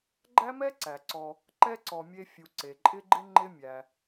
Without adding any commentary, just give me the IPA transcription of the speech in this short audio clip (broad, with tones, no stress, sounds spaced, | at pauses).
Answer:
ɡ͡ǃ æ˥ m ɛ˥ ǀ æ˩ ǀ ɔ˨ | ǃ ɛ˥ ǀ ɔ˨ mʲ e˦ fʲ u˨ ǀ e˩ ǃʼ ɪ˥ ɡ͡ǃ ɪ˥ ŋ͡ǃ ɪ˥ mʲ æ˩